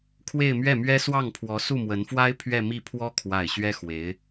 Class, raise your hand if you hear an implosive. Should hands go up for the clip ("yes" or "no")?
no